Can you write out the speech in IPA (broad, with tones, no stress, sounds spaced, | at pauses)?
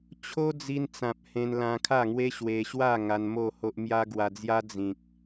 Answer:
t͡ɕʰ o˦ d͡z i˧ n t͡s ã˨ p̚ h ẽ˧ n l ã˧ kʰ a˥˧ ŋ w e˦ ɕ w e˧ ɕ w a˥˧ ŋ a˧ n m o˥˧ h o˦ ʔ m j a˦ ɡ w a˧ d͡z j a˦ d͡z ĩ˨ k̚